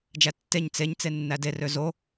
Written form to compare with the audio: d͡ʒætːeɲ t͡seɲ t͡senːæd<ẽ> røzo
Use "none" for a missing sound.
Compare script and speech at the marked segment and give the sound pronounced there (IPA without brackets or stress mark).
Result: e